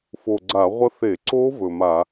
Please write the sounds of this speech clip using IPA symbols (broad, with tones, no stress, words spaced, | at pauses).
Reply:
fo˨˩ɡ͡ǀa˧˩˧ʁʷɐ˦˥ θe˧˩˧ǀo˦˥ vɵ˨˩ma˧˩˧